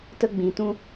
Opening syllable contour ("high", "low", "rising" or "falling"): high